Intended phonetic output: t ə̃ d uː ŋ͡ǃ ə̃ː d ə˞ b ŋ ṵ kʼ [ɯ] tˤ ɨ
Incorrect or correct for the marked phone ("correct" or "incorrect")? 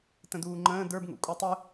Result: incorrect